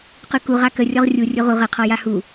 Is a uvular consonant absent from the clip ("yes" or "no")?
no